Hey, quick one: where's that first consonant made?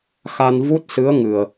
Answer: velum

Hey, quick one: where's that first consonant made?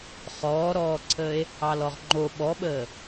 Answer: uvula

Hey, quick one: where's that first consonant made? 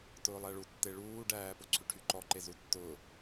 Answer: tongue tip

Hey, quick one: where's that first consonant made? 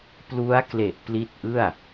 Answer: lips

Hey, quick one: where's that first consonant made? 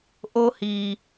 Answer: throat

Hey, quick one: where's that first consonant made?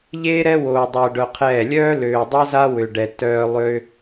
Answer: palate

